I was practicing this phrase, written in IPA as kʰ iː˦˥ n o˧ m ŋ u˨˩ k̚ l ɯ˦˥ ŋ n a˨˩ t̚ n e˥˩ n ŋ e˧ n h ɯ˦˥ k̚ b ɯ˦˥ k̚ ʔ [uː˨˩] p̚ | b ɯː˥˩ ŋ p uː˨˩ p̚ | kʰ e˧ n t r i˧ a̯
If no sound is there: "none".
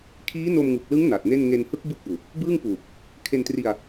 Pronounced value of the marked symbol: uː˨˩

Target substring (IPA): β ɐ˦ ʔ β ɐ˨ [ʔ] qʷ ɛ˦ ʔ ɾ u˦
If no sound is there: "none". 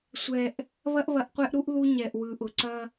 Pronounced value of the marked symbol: ʔ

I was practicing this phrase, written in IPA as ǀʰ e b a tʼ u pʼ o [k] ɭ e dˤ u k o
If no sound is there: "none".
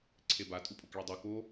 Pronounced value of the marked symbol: k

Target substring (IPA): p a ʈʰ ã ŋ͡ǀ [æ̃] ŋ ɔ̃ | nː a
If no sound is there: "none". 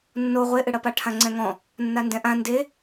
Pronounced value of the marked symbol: ɛ̃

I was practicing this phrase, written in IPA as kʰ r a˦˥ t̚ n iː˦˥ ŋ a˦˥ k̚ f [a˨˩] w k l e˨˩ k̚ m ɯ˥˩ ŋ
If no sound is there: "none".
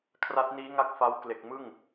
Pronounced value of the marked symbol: a˦˥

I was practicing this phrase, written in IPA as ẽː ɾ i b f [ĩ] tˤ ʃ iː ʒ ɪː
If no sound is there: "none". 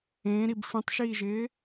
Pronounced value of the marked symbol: ĩ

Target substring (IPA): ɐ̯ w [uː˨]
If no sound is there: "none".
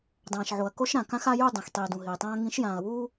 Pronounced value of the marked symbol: uː˦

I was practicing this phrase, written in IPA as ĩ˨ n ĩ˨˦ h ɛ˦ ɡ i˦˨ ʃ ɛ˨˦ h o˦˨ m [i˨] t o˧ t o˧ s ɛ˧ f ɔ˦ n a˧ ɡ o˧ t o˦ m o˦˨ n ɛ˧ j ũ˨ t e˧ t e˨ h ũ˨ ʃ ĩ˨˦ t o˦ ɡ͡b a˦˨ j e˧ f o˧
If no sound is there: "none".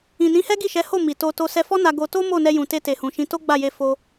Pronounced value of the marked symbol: i˨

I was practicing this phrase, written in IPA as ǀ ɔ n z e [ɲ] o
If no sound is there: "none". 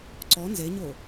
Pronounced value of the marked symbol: ɲ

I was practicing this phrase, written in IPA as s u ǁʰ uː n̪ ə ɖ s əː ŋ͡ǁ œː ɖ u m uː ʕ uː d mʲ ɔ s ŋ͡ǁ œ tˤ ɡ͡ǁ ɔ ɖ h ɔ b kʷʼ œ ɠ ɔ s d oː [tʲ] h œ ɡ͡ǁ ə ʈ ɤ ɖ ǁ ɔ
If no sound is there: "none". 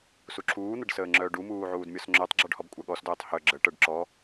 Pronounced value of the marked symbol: tˤ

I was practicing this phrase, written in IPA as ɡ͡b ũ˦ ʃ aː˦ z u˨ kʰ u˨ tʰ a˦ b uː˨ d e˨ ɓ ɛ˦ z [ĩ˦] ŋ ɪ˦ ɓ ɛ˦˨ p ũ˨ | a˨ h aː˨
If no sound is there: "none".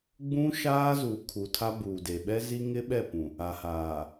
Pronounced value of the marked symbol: i˦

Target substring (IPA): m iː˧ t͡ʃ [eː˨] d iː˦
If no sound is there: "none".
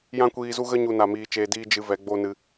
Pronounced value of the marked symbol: eː˧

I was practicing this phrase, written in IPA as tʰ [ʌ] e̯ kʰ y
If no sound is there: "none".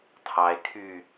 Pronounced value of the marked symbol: ɑ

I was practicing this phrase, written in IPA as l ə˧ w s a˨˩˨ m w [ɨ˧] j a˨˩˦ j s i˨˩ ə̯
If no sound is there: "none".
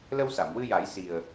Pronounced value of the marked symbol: ɨ˧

